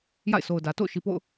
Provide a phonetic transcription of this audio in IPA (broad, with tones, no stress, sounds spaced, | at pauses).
j a̰˦˨ ɪ̯ sʰ o˨ ʊ̯ d ä˨ t o̰˦˨ ʊ̯ ʃ i˨ p o̰˦˨ ʊ̯